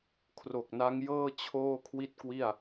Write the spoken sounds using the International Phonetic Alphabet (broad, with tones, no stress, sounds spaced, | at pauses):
kʰ r o˨˩ k̚ n a˦˥ ŋ j ɤː˥˩ t͡ɕʰ oː˥˩ kʰ w i˥˩ t̚ k w i˥˩ a̯